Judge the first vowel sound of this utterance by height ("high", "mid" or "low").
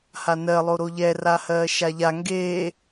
low